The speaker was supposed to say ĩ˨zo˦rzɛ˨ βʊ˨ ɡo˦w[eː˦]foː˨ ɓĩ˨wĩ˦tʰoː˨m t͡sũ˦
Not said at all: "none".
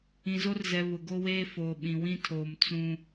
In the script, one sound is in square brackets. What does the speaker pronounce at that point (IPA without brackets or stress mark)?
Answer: eː˦